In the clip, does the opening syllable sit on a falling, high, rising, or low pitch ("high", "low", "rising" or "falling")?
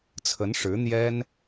rising